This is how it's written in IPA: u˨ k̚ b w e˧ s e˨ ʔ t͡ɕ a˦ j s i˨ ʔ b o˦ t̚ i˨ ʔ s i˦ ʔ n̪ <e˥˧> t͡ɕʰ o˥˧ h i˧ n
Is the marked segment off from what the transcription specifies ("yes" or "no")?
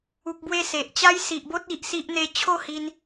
no